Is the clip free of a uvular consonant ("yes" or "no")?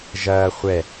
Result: no